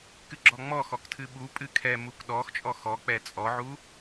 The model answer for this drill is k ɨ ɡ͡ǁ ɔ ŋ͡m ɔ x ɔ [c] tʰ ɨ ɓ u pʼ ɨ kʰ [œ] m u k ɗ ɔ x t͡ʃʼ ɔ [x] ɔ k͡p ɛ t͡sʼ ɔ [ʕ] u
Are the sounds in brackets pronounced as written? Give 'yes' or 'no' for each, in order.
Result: no, no, yes, yes

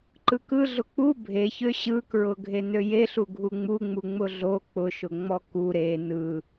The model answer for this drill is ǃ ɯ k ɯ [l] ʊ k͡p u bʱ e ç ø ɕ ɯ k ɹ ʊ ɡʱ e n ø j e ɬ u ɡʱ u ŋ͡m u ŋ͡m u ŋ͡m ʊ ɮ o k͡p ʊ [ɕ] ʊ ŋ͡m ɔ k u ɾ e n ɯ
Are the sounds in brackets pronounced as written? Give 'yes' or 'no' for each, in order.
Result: no, no

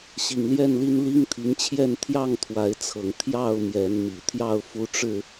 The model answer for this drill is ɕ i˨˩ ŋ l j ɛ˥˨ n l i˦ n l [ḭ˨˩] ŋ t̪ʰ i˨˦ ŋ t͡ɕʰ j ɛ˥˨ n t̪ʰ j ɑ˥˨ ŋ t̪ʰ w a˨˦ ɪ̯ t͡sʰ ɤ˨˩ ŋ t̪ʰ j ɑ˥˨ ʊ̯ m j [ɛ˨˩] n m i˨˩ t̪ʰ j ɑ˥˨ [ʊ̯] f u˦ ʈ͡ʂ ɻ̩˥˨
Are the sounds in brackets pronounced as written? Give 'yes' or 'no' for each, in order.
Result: no, no, yes

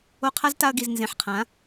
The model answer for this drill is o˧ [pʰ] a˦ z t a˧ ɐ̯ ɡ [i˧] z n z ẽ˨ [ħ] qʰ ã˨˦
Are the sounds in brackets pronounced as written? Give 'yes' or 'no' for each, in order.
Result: no, no, yes

